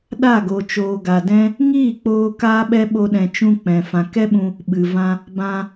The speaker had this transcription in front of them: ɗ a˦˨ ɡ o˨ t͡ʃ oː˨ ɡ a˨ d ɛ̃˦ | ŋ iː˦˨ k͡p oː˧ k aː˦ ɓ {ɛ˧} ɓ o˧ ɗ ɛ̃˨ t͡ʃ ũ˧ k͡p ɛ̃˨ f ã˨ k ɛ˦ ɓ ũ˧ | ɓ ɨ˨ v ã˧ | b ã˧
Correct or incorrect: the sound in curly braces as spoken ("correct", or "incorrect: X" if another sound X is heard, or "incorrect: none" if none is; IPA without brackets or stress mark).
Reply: incorrect: ɛ˦